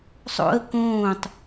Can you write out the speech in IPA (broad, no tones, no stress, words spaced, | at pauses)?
sˤo̰ə̯ kõːtˤ